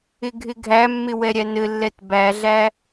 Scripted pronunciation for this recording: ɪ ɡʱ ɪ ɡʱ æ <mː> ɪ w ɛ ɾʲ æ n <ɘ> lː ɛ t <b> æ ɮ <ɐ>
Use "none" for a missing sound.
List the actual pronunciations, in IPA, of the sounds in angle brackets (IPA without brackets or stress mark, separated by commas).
mː, ɘ, b, æ